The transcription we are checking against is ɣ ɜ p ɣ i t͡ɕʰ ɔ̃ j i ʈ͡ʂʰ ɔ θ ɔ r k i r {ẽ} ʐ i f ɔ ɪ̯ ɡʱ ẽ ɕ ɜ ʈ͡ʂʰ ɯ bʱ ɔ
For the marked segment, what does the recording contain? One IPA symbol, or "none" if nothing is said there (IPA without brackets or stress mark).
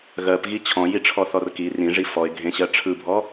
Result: ĩ